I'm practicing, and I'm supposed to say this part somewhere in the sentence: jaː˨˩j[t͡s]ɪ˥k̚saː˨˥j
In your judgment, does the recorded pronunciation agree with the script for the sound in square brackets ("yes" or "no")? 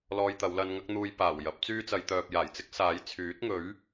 yes